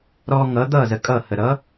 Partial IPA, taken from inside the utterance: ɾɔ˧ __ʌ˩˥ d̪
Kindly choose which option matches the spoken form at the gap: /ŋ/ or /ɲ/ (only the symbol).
ŋ